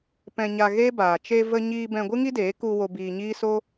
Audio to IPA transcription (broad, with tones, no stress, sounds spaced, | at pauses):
p ɛ̃˧ ɲ a˧ ɣ e˦ b aː˨ t͡ʃ e˧ v ə˧ ɲ iː˧ b ɛ̃˧ ɡʷ ɨ˦ ŋ i˦ d eː˨˦ k u˧ w o˧ b iː˧ ɲ iː˦ s o˦